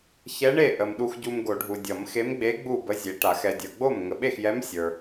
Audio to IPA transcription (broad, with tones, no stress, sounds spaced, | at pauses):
ç ɛ˧˥ ɳ e˥˩ ʔ ə˨ m ɗ u˨ x ɟ u˨ m ɡ o˨˩˦ ɖʱ u˨ dʲ ʌ˨˩˦ m x e˧˥ m ɡ͡b e˧˥ ɡ͡b u˥˩ b ə˧˥ zʲ e˨ ʈ a˨˩˦ x ɛ˨ dʲ ə˞˨ ɡ͡b o˥˩ m ŋ ə˨ ɓ e˥˩ x j ɛ˧˥ m sʲ ə˞˨